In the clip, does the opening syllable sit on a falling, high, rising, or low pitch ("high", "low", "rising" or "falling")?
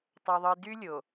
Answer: low